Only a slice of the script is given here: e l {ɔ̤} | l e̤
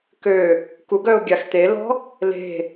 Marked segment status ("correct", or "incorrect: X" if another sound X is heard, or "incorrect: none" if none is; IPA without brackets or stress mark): correct